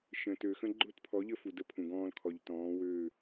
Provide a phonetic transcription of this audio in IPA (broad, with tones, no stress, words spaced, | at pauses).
ʃə̃˨tø˨ xə̃˦ɡ͡ǃʊ˦tpʰɔ˨˦ʎə˦ fu˨də˦pʰũ˨ɡɔ̃ː˦l kʰɔ˨ʎtɔ̃ː˨˦ wøː˦˨